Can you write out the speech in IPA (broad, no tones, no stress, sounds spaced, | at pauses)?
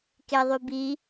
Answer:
k e ðˤ y b i